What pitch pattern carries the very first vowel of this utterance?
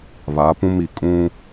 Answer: rising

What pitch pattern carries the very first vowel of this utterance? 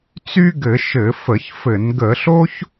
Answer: high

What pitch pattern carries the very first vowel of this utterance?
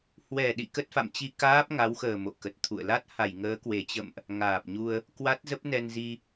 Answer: low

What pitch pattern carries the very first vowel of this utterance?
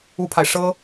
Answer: high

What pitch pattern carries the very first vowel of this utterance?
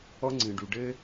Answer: high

